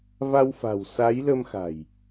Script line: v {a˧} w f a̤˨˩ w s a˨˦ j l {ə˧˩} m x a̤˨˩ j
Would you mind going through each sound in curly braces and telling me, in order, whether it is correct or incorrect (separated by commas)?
correct, incorrect